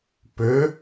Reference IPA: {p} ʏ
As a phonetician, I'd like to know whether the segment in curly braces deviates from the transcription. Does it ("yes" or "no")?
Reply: no